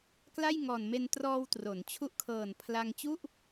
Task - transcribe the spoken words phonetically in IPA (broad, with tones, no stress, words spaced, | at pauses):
kla˥˩jŋɔː˨˩nme˧n trɔː˧w tro˩˦n t͡ɕʰu˦˥ʔkʰɤː˨˩n pʰla˧ŋ t͡ɕu˥˩ʔ